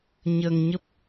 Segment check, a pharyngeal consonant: absent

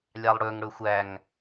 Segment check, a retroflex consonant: present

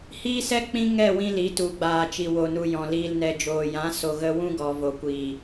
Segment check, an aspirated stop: absent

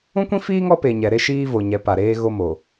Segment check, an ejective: absent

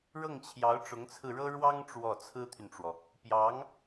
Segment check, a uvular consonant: absent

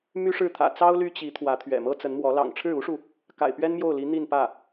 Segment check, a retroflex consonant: present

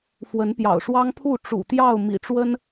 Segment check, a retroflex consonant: present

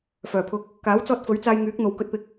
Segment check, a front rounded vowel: present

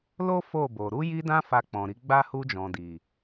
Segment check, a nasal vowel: present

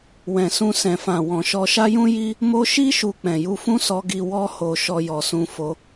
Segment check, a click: absent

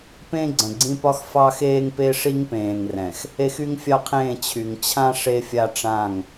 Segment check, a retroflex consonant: present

